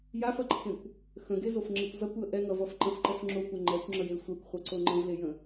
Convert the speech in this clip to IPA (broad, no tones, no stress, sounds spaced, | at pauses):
j a f ɐ ǃʰ ẽ kʷ | x ə̃ ɡ e z o f ŋ͡ǁ ə kʷ z ʌ kʷ j ə ʔ ɛ ŋ ʌ v ʌ f ǃ ə̃ f ǃ ɛ f ŋ͡ǁ o kʷ ʌ ŋ͡ǃ ɛ kʷ ŋ͡ǁ ʌ j e sʷ ɛ kʷ χʷ ʌ ǀ o ŋ͡ǃ ə̃ v l e j ə̃